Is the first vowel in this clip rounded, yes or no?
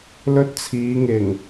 yes